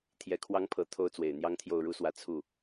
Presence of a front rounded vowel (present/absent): absent